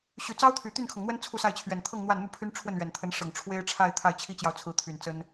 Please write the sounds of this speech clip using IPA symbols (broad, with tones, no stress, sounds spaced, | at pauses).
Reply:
ɕ y˨˩ t͡s ɑ˥ ʊ̯ t̪ʰ y˨˩ t̪ y˥˩ n kʰ ɤ˩ ŋ n̪ w ə˥ n t͡sʰ u˥˧ s a˥˩ ɪ̯ t͡ɕʰ ɥ ɛ˨˩ n t̪ʰ ɤ˥˧ ŋ n̪ w a˥˧ n n̪ u˥˩ pʰ y˥ n ʈ͡ʂʰ w ə˥˩ n ɥ ɛ˨˩ n t̪ʰ ə˧˥ n ʂ ɤ˨˩ ŋ ʈ͡ʂʰ w e˥ ɪ̯ ʈ͡ʂʰ a˥˧ ɪ̯ t̪ʰ a˥˩ ɪ̯ t͡ɕʰ i˥ t͡ɕ j ɑ˨ ʊ̯ t͡sʰ ɹ̩˧˥ t̪ʰ y˨˩ n t͡s ə˥ n